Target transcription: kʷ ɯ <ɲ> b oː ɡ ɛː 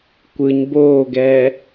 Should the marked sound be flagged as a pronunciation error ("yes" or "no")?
no